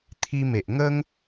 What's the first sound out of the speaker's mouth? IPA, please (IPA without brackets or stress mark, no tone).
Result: t̪ʰ